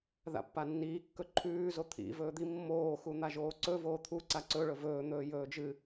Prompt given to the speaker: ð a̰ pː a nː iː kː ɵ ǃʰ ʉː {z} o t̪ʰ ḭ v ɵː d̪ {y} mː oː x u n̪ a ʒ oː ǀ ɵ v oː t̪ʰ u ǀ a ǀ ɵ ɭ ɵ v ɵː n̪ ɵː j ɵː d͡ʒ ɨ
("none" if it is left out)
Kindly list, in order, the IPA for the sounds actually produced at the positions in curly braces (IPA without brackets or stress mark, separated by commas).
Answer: z, i